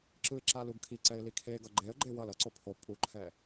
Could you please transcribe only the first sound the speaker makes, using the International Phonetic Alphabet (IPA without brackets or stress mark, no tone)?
ǁ